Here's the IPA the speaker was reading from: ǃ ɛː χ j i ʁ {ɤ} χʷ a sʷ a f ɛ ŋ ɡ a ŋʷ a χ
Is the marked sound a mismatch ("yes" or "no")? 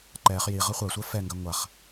no